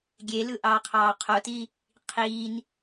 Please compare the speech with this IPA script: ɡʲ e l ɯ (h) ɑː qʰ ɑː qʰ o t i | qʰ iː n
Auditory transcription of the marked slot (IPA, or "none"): ʔ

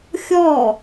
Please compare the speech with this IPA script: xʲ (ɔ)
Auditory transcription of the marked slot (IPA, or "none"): ɔ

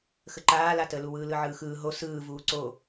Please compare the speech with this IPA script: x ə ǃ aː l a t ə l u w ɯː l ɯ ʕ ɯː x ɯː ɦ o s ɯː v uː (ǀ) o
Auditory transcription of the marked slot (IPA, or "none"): ǀ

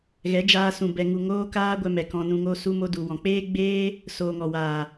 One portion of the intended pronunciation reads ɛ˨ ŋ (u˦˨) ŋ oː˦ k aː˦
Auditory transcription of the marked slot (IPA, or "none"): u˨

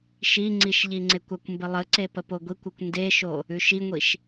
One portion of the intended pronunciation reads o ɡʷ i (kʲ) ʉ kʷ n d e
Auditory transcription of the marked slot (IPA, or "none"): kʷ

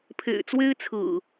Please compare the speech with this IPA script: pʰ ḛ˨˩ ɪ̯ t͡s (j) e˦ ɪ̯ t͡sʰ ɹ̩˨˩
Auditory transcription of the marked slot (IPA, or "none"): w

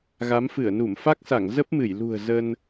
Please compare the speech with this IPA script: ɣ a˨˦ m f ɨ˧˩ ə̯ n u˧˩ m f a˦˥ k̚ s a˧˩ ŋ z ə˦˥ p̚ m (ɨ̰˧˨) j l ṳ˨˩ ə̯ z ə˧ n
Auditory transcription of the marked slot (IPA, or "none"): ɨ˧˩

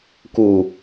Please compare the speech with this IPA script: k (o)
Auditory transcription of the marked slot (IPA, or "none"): u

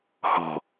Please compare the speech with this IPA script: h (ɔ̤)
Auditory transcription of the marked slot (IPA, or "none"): ɔ̤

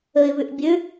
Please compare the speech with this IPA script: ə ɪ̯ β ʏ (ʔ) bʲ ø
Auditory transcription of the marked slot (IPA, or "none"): ʔ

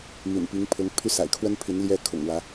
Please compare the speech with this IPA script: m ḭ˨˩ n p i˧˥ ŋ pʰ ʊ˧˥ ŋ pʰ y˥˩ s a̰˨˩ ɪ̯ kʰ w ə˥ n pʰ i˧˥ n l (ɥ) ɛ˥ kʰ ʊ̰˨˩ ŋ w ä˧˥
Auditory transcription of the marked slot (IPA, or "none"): j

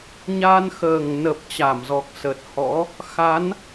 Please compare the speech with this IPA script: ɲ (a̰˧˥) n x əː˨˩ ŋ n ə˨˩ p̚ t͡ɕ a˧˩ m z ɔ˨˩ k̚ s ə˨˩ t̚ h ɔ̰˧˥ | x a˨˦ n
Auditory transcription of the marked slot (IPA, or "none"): a˧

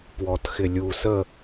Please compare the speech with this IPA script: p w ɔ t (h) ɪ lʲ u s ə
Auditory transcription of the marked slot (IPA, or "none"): x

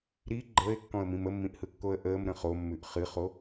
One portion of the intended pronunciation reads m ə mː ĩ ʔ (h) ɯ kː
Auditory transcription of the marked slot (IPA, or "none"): h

